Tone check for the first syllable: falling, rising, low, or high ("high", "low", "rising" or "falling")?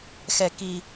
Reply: low